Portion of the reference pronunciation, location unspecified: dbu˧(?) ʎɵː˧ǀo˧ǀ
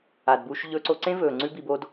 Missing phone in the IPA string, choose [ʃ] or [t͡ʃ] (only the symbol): ʃ